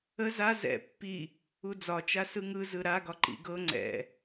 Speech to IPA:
ə z a z ɛ̰ pː i | u d͡z ɒ t͡ʃ a s ɯ ŋ ɯ z ɯ ɾ a ɡ ɒ ǃ ḭ ɡ ɤ ŋ͡ǀ ɛ̰

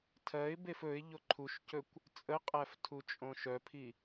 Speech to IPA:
tʰ ɜ ɪ̯ b e f ɵ ɪ̯ ʎ o ǃʰ u ʃ c ɵ kʷ | t͡sʼ ə qʼ æ f tʰ u t͡ʃʼ õ ʃ œ pʰ i

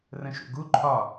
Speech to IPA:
r ə̃ ʃ ṵ ɡ u ǃʰ ɒ

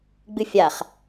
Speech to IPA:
ɡ͡b ɨ fʲ a χ

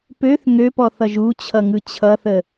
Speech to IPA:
p ø θ ŋ ø p ɔ θ ʌ ʒ u t͡ɕʰ ʌ ŋ ɯ t͡ɕʰ ʌ θ ə

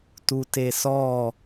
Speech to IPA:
t u t e s ɔ

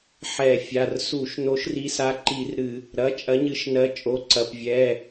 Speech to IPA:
ħ ɛ˧˩˧ fʲ a˩˧˩ r s u˧˩˧ ʃ n o˨˥ ʃ r i˨˥ s a˨˥ ǃ i˧˩˧ r ɾ ɨ˧˩˧ | ɾ ɐ˩˧˩ t͡ʃʼ ɐ˨˥ ɲ ɨ˨˥ ʃ n ɜ˨˥ t͡ʃʼ o˩˧˩ ǀ ɐ˩˧˩ p vʲ ɛː˩˧˩

